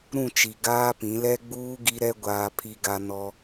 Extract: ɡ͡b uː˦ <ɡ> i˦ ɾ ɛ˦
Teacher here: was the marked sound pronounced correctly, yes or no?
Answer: yes